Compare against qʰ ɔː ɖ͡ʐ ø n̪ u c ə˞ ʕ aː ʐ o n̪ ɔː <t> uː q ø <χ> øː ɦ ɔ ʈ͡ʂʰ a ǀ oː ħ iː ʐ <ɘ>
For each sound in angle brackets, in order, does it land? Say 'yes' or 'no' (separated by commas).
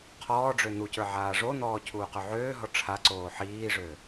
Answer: no, no, no